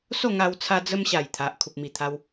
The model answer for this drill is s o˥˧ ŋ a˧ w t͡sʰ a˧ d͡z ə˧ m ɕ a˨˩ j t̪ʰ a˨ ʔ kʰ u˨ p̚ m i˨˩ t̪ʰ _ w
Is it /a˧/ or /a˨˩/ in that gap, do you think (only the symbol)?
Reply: a˧